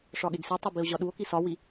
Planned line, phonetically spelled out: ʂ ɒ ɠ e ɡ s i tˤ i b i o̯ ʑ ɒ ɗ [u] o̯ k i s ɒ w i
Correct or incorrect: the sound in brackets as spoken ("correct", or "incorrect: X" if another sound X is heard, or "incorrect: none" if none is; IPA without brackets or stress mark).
correct